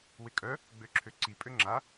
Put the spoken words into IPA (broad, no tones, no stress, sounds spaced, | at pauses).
w ɪ kʼ œ | ɡ͡b ø ǁʰ ø ǀ i pʼ ø ŋ͡ǁ a